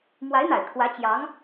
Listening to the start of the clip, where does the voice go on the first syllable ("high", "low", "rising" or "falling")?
rising